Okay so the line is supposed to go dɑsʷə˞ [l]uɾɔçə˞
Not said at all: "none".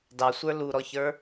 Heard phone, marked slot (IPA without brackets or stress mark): l